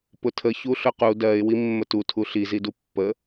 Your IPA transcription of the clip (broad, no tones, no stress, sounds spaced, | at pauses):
p ʊ tʰ ə ç u ɬ ʊ q u d ɜ ɪ̯ w i mː ə t u tʰ u ɬ i z i d u pː ə